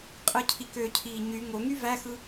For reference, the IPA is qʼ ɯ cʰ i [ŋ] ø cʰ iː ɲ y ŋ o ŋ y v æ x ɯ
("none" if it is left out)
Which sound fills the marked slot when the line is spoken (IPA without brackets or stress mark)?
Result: k